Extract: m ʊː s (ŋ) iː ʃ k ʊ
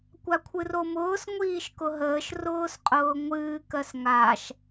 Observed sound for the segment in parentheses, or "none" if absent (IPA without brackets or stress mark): ŋʷ